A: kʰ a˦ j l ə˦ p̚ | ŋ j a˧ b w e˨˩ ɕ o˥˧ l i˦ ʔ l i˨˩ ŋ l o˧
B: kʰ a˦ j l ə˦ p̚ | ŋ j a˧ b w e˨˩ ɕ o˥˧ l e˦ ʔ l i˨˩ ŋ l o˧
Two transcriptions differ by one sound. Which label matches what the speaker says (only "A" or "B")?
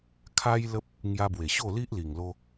A